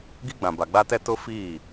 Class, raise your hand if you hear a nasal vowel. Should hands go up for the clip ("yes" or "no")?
yes